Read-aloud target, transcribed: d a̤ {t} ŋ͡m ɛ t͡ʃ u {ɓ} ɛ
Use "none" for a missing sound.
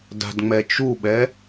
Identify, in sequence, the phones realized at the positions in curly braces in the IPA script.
d, ɓ

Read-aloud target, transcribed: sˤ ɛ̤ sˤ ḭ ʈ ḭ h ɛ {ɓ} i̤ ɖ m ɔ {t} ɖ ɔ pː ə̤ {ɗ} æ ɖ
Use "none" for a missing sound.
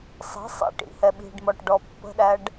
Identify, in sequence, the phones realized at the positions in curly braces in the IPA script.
ɓ, ʈ, ɗ

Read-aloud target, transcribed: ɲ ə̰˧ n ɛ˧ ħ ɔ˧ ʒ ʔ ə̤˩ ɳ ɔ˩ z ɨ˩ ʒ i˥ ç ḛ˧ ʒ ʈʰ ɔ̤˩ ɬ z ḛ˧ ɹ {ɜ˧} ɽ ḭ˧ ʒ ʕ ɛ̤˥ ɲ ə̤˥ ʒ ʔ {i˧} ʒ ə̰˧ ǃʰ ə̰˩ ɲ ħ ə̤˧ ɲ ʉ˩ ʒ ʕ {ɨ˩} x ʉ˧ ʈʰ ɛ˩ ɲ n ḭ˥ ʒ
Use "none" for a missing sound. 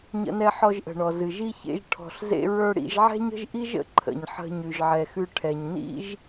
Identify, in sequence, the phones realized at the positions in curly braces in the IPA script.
ə˞˧, i˥, ɛ˩

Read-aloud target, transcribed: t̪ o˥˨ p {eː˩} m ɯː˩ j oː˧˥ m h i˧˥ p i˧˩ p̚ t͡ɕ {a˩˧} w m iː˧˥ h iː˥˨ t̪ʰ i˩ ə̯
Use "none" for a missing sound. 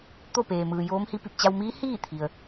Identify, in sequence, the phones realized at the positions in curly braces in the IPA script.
eː˩, a˧

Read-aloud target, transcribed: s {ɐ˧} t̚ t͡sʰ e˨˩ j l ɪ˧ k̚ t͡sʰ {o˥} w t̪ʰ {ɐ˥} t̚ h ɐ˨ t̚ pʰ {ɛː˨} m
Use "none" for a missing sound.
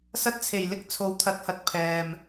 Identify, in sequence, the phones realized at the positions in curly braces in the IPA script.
ɐ˧, o˨˥, ɐ˨˥, ɛː˨

